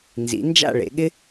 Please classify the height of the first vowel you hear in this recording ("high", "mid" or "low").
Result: high